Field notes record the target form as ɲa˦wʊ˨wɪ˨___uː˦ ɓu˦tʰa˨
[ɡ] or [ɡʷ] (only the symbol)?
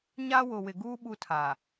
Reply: ɡ